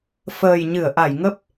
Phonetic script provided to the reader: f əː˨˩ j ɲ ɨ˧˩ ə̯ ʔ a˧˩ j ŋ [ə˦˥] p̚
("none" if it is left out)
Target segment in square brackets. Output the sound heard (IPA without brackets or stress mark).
ə˦˥